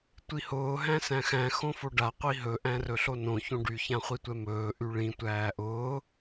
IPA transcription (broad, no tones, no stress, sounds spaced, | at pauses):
tʷ i h ʊː ɦ æ̃ s æ̃ x æ̃ x õ f o ɖ a qʷ i ɦ ɵ ʔ æ̃ r ɵ ɬ o n õ ç õ ɖ y ç ã χʷ i tʷ ɛ m ɵː ʔ y ɭ ĩ tʷ æː ʔ ʊː